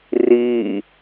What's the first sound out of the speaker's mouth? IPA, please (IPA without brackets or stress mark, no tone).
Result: r